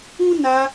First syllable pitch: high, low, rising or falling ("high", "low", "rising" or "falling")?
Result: high